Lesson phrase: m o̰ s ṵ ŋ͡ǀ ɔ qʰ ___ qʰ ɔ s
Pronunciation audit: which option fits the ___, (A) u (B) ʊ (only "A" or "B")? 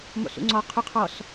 B